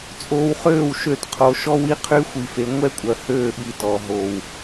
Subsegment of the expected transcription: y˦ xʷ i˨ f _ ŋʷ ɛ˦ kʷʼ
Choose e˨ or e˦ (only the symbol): e˨